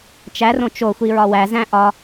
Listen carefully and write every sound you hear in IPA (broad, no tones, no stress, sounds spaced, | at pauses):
t͡ʃ æ r õ t͡ʃ o xʷ i ɹ ɒ w æ z æ̃ ʔ ɒ